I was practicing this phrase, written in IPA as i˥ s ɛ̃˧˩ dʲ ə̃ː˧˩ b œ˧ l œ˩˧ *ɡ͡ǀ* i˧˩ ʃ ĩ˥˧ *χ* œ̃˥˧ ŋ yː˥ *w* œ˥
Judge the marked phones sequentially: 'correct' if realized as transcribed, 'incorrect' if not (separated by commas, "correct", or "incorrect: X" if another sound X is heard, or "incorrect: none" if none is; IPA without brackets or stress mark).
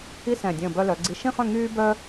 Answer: correct, correct, incorrect: b